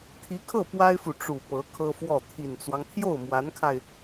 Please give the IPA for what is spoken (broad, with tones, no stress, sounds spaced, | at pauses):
t̪ʰ i˧˥ kʰ ɤ˥˩ p w a˥ ɪ̯ f u˨ ʈ͡ʂ u˨˩ p ɤ˧˥ kʰ ɤ˥ f w ɔ˥˩ t̪ʰ i˨˩ n t͡s w ɑ˦ ŋ t̪ʰ j o˥˩ ʊ̯ m w a˧˥ n kʰ a˧ ɪ̯